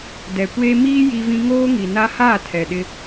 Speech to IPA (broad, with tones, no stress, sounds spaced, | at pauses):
d ɛ˨ kʷ eː˦ m iː˦ j i˦ v ĩ˦ ŋ oː˦ ŋ i˨ n a˦ h aː˦˨ tʰ ɛ˨ ɗ ɪ˦